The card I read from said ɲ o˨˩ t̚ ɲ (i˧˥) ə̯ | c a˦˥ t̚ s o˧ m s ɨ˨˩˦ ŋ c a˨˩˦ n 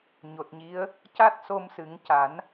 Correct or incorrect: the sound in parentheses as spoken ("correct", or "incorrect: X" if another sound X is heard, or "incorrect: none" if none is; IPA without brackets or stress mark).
correct